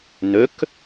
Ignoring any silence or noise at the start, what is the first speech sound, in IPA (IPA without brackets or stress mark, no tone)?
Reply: n̪